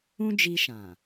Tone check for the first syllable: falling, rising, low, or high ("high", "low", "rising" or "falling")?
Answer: high